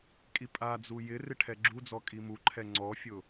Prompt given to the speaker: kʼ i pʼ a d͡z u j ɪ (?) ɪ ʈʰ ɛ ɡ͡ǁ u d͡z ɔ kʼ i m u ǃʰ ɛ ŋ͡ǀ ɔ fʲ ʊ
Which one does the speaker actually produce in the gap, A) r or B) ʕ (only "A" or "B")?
A